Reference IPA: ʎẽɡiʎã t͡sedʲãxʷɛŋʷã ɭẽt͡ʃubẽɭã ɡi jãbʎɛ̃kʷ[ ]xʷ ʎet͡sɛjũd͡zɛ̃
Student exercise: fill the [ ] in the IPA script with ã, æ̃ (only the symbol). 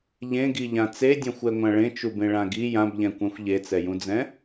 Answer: ã